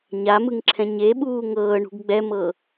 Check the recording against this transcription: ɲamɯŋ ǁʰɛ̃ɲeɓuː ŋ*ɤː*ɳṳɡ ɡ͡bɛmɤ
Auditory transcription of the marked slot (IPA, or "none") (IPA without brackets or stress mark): ɤː